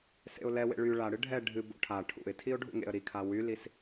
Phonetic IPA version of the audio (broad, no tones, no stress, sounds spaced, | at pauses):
s ḛ ʊ̯ l ɛ w ḛ ɭ y ɭ a ɽ ɨ ɖʱ ɛ ɖʱ ɨ b o̰ ʈʰ a ʈʰ ṵ ɪ̯ tʰ i ʊ̯ ɖʱ ṵ ŋ ḛ ə̯ ɾ i kʰ a w y l i s